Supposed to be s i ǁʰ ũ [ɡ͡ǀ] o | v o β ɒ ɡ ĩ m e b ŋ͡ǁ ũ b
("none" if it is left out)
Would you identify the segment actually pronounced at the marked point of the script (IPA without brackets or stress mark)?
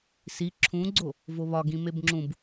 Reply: ɡ͡ǀ